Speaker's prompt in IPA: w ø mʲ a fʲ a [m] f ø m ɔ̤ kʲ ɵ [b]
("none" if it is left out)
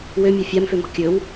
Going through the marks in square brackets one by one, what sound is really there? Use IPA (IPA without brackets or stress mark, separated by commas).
m, w